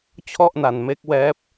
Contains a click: no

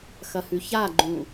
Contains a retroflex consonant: no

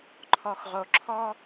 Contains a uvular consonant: yes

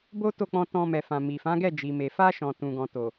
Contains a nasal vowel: yes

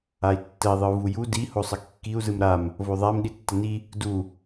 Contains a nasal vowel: no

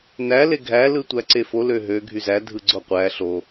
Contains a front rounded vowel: yes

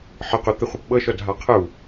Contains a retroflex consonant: no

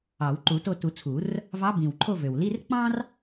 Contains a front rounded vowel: yes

